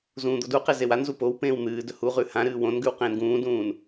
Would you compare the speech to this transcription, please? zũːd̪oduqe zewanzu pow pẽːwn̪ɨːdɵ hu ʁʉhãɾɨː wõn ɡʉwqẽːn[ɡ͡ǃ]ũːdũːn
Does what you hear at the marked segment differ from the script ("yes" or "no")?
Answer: yes